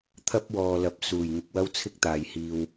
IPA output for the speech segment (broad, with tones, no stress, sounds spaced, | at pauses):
t̪ʰ ɐ˥ p̚ w ɔː˨ l ɐ˨˥ p̚ s uː˨˩ j ŋ ɪ˧ k̚ w ɐ˥ w t͡sʰ ɪ˥ k̚ t̪ aː˨˧ j h iː˧ w